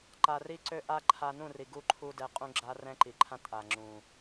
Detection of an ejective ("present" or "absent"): present